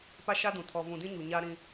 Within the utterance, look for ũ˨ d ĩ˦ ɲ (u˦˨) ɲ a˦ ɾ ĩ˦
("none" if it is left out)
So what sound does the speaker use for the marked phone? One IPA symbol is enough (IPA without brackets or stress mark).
u˨